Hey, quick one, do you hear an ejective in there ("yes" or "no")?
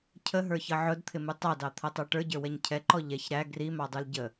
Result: no